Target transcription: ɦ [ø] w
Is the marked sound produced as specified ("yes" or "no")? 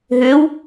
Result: yes